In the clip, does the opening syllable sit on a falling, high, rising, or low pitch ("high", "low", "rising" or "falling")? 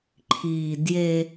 low